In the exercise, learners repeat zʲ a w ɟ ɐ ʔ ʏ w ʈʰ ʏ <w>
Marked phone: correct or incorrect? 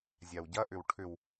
correct